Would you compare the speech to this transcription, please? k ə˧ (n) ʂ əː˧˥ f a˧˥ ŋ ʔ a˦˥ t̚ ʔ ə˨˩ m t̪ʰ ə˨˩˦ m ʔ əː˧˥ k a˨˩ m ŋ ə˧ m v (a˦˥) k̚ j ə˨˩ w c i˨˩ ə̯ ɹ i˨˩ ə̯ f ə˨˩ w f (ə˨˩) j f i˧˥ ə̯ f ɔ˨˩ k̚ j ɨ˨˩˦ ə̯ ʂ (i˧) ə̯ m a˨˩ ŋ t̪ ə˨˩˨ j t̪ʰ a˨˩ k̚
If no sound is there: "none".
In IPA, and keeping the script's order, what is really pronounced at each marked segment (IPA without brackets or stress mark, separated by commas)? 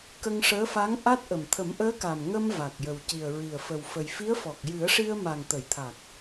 ŋ, a˨˩, ə˨˩, i˧